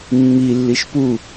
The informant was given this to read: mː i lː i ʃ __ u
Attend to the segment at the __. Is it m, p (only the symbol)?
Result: p